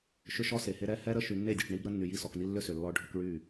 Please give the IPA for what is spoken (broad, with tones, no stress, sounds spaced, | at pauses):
ʃ ʏ˦ ʃ ɔ˦ s e˨ h e˦ ɾ ɛ˦ h ɛ˦ ɾ ə˦ ʃ y˨ nː e˦˨ dʲ ɔ˨ ʈ ɳ i˦ b ɾ ə˦ nː y˨ j i˦˨ s ɔ˨ k n i˦ lː ʏ˦ s ʏ˨ lː ɔ˦ ɖʱ ʏ˦ k ɭ y˦˨